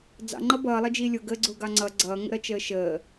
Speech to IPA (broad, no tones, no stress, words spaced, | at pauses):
d͡zɑ̰ŋ͡ǃʌ bʌːlˠʌd͡ʒiː lʲʊɡəːɡ͡ǀʊːɡɑ ŋ͡ǀʌ ɡ͡ǀʌːŋə̰ɾʌt͡ʃəː ʃəː